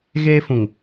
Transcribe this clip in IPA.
ɣ eː˦ f ũ˨ ŋ

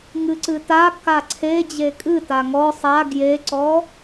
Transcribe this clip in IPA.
ŋ ɨ ǀ ɨ t a k a ǀʰ e d͡ʑ e kʼ ɨ t a ŋ ɔ sˤ a ɡ j e ǀ ɔ

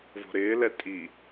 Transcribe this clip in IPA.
v o̤ ɾ ɪː l ɛ tʼ i

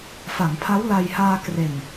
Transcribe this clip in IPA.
f a˩˦ ŋ pʰ a˦˥ w l a˧ j h aː˧ k r e˨˩ n

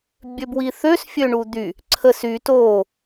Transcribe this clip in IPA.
bʲ ø b w i θ ø s fʲ ø ɳ u d̪ y | ǀʰ ə s y t o

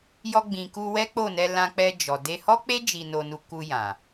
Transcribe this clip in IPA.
j ɔ˧ ɡ͡b ĩ˨ k u˧ w ɛ˦ k͡p o˦˨ n ɛ˧ l ã˧ k͡p ɛ˧ d͡ʒ ɔ˨ d e˧ h ɔ˦ k͡p e˦ d͡ʒ i˧ n o˧ n u˧ k u˧ j ã˨

